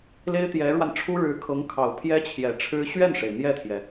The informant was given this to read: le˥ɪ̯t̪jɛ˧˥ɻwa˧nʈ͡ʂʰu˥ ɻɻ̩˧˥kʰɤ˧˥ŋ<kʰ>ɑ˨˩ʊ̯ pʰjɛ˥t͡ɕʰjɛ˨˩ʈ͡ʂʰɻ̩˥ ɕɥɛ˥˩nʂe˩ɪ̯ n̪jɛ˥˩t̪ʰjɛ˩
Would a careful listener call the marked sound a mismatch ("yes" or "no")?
no